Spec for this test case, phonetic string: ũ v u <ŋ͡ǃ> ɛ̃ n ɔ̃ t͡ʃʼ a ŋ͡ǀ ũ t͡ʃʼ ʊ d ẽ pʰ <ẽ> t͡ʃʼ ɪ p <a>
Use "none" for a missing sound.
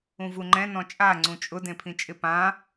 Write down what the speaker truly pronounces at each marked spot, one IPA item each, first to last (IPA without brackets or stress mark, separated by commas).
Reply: ŋ͡ǃ, ĩ, ã